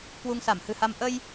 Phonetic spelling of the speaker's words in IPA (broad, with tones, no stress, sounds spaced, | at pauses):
k w u˧ ŋ s a˧˩ m h ɨ̤˨˩ h a˧ m ʔ ə˧ j